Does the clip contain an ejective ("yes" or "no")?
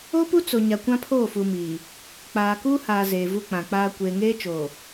no